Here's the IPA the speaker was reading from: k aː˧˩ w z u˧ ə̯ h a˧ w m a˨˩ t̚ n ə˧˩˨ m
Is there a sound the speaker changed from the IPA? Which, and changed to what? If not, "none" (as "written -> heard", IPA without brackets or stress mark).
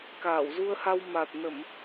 none